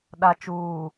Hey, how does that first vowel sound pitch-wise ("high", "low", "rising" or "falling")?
low